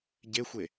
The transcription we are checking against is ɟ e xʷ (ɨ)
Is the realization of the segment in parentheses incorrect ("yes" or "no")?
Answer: yes